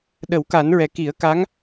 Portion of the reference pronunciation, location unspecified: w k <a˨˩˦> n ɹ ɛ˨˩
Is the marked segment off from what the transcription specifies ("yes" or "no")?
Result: no